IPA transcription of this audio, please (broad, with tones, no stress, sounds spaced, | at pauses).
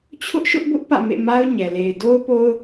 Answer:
t͡ɕʰ ʊ˦ ʔ ʃ ʊ˦ ʔ b ʊ˦ ʔ p ä̰˦˨ m ḛ˦˨ m a˦ ʊ̯ ɲ ɛ˨ l e˨ ɪ̯ d o˦ ʊ̯ p o˦ ʊ̯